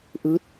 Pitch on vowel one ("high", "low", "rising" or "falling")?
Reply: rising